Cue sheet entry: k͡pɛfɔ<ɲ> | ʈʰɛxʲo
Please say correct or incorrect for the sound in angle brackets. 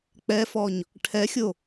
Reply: correct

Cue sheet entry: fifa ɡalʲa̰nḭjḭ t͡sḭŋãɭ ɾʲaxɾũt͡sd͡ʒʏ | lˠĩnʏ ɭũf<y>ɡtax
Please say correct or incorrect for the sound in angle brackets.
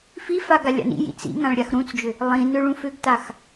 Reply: incorrect: ʏ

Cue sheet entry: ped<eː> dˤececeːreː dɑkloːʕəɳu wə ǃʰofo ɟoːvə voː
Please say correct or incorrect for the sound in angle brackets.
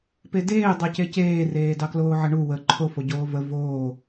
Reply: correct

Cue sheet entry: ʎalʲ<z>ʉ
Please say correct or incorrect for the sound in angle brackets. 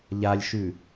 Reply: incorrect: ʃ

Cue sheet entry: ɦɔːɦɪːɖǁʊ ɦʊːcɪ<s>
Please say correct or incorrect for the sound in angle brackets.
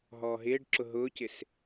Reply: correct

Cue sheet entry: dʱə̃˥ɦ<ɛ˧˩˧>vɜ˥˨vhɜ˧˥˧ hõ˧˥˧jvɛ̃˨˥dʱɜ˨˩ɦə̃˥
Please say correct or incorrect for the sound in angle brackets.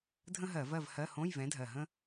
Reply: incorrect: ɜ˧˩˧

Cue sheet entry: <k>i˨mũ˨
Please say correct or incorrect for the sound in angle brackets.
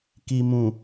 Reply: correct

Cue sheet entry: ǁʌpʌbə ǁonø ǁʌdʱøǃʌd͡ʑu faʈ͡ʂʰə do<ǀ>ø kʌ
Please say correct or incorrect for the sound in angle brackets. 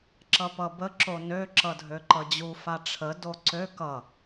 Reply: correct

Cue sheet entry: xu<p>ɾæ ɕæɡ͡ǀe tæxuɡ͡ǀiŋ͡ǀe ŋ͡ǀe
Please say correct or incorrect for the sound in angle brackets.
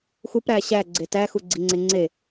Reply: correct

